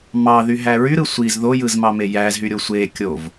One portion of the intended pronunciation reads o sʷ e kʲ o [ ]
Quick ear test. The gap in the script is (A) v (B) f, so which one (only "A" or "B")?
A